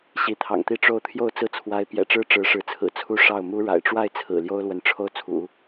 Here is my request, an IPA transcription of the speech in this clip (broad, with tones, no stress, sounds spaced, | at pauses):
ɕ i˧˥ t̪ʰ ɑ̰˨˩ ŋ t̪ i˥˧ ʈ͡ʂ o˥˧ ʊ̯ t̪ʰ j o˥˧ ʊ̯ t͡s ɹ̩˥˩ t͡sʰ w a˧˥ ɪ̯ p j ɛ̰˨˩ ʈ͡ʂ ɻ̩˥ ʈ͡ʂ ɻ̩˧˥ ʂ ɻ̩˧˥ t͡sʰ ɹ̩˨˩ t͡sʰ u˥ ʂ ɑ˥˩ ʊ̯ m u˥ ɻ a̰˨˩ ɪ̯ ʈ͡ʂ w a˥˩ ɪ̯ t͡sʰ ɹ̩˨˩ l j o˥ ʊ̯ l w ə˧˥ n ʈ͡ʂʰ o˥˩ ʊ̯ t͡sʰ ṵ˨˩˦